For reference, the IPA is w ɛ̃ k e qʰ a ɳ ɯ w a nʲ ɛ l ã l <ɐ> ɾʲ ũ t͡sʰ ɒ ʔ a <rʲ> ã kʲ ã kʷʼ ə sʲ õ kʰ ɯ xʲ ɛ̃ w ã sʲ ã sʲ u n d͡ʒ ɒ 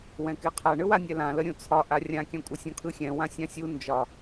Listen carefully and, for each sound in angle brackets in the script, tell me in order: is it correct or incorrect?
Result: incorrect: ə, correct

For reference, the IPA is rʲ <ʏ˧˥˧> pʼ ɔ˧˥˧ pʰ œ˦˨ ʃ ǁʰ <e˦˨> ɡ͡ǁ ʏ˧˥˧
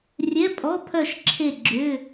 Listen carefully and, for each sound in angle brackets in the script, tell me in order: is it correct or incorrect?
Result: incorrect: ɛ˧˥˧, correct

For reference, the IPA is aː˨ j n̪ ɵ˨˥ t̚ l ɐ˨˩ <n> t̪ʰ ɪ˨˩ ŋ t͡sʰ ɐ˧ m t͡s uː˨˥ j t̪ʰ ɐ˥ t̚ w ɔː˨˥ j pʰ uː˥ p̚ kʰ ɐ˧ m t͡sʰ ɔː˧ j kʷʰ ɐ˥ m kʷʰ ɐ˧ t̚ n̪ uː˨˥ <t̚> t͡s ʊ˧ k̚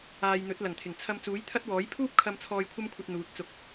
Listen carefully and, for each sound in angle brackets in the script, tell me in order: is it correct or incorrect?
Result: incorrect: ŋ, correct

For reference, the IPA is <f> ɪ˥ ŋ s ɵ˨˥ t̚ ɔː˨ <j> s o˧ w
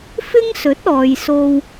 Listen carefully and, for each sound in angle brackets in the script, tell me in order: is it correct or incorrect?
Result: correct, correct

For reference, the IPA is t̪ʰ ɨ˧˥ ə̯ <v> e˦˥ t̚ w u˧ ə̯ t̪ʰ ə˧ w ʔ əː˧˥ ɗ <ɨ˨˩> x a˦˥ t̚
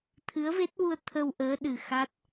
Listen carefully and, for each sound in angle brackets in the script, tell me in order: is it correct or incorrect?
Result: correct, correct

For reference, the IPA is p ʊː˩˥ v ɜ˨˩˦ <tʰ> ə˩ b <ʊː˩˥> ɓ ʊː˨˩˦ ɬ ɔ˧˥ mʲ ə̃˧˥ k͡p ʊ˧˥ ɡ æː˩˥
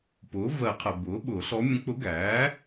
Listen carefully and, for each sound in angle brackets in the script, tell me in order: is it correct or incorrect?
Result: incorrect: qʰ, correct

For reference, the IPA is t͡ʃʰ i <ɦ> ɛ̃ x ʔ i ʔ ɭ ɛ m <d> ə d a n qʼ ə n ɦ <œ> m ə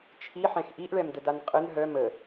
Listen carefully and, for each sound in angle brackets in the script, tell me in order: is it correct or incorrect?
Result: incorrect: ħ, correct, correct

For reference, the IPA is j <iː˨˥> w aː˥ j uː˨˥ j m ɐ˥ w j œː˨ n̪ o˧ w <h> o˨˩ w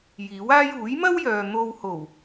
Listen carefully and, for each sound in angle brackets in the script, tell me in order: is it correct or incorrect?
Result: correct, correct

